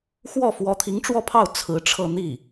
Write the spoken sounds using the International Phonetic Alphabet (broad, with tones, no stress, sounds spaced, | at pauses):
x w ɔ˥˩ f w ɔ˧˥ t̪ʰ i˧˥ ŋ ʈ͡ʂ w ɔ˥˧ pʰ ɑ˥˩ ʊ̯ t͡sʰ ɹ̩˧˥ ʈ͡ʂʰ ɤ˥˧ n̪ i˥˩